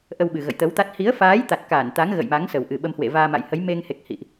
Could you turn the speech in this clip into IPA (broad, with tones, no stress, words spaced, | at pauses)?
ʔə˧wɓɨ˨˩ ɣə̰˧˨jt̪ə˨˦wt̪a˦˥t̚ hi˨˦ə̯faː˨˦j t̪a˨˩t̚kaː˧˩nt̪a˨˦ŋ ɣə̰˧˨jma˨˦ŋ sə˨˩wʔɨ˨˩ ɓə˧mhwḛ˧˨ vaː˧ma̰˧˨jhə˨˦j me˧ŋhe˨˩k̚ hḭ˧˨ʔ